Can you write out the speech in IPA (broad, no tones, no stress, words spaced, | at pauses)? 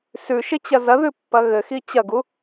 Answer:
sʉʃɪt͡ɕɐ zɐðʉpːɐ ɣɘxi t͡ɕɐɡu